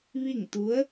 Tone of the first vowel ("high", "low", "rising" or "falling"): falling